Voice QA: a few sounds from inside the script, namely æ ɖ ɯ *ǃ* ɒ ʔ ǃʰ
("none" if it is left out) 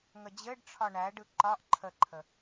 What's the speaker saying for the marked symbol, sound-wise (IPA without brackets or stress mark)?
ǃ